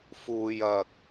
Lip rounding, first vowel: rounded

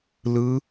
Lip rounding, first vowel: unrounded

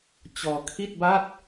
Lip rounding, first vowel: rounded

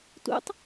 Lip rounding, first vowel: rounded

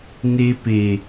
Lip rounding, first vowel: unrounded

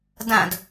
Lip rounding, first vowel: unrounded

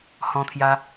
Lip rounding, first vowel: rounded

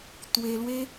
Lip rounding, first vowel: unrounded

